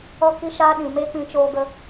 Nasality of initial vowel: oral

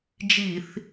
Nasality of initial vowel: oral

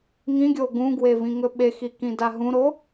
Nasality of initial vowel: nasal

